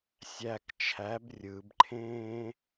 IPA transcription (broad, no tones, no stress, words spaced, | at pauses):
sʲæk t͡ʃʰæb rʲɯbǃʰẽː